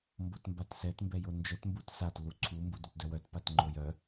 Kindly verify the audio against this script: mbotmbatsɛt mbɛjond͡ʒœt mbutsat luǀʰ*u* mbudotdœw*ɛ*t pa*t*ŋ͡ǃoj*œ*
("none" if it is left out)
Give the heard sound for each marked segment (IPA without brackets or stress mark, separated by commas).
u, œ, t, œ